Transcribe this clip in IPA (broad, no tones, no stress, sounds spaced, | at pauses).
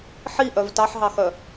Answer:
ħ i ʔ œ v t ɑ ħ ɦ ɑ x œ